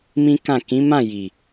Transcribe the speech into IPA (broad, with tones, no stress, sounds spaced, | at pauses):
m ĩ˦ k ã˦˨ k ĩ˨˦ m ã˦˨ j i˨